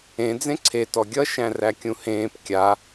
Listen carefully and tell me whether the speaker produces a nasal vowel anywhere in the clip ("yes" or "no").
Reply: yes